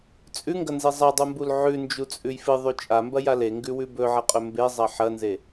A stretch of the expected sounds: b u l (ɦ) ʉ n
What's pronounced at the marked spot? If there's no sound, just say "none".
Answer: ʕ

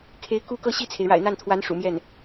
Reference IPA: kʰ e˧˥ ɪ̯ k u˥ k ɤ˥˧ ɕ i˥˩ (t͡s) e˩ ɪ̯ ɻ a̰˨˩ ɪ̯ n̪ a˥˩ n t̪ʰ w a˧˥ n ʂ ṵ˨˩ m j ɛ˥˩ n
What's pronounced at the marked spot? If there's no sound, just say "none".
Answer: t͡sʰ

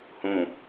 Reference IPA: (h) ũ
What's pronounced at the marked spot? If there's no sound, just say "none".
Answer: h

